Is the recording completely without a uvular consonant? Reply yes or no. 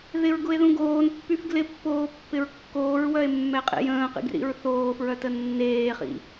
no